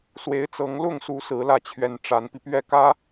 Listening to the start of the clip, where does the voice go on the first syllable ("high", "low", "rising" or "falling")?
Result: rising